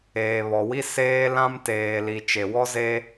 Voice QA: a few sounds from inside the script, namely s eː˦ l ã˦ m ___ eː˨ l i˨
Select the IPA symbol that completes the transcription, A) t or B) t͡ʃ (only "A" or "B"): A